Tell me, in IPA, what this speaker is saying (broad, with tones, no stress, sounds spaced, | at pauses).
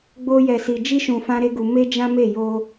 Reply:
ɡ͡b o˦ j ɛ˧ s i˧ d͡ʒ i˦ ʃ ũ˧ f ã˦ ɾ e˦ ɡ u˧ m e˦ d͡ʒ ã˦ m e˦˨ j o˧